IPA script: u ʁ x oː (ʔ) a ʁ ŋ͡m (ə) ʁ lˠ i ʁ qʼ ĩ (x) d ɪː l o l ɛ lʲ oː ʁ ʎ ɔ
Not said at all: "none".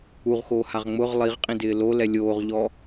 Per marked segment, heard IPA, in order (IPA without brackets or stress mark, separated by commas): h, ʊ, none